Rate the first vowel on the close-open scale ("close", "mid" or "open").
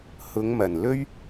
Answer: close